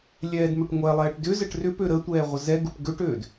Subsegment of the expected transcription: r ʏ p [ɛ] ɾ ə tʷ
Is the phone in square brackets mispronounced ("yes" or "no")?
yes